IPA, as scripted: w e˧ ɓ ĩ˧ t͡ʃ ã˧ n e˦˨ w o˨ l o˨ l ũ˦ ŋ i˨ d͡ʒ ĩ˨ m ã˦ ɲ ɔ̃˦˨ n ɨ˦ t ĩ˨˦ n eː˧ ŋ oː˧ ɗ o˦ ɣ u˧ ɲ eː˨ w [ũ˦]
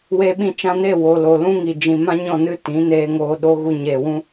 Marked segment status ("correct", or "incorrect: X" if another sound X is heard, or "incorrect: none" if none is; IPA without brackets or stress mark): correct